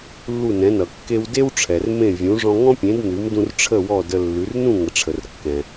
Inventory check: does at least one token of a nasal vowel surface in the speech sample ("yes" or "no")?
yes